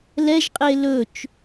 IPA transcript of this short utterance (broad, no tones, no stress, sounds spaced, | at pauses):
l ɛ ʒ qʼ e l ɵ t͡ʃ